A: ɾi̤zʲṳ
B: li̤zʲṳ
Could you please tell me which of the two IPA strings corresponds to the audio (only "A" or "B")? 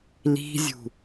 B